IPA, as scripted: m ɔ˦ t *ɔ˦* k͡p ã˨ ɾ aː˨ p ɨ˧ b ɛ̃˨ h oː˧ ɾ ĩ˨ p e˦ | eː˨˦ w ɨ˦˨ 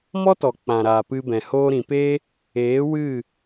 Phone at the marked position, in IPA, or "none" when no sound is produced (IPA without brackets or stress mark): ɔ˨